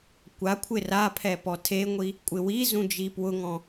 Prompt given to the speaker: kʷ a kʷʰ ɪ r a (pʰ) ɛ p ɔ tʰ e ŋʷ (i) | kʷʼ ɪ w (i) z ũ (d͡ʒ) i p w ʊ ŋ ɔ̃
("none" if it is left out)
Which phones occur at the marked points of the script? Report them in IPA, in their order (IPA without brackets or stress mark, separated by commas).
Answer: pʰ, i, i, d͡ʒ